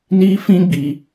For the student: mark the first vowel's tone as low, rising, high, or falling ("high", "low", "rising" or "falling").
high